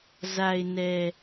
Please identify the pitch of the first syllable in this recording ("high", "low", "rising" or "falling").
low